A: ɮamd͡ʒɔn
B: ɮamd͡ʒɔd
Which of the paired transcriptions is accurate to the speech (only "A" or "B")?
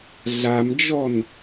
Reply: A